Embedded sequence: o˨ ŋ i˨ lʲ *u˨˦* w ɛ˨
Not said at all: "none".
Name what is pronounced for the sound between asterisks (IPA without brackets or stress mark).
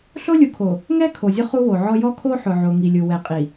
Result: u˨